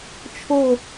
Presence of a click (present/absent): absent